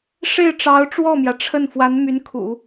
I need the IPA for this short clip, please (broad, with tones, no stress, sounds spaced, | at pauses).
ʂ e˥˩ ɪ̯ ʈ͡ʂ ɑ˧˥ ʊ̯ ʈ͡ʂ w ɔ˥˩ m j ä˩ ʈ͡ʂʰ ə˥˩ n f w a˧˥ n m y˧˥ n kʰ ṵ˨˩˦